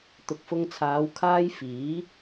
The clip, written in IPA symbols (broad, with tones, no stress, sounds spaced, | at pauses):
t̪ ʊ˨ k̚ f ʊ˧ ŋ t͡sʰ aː˨˧ w kʰ aː˥ j f iː˨˥